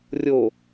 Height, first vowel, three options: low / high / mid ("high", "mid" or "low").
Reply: mid